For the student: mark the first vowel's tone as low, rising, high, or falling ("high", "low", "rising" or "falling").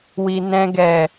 low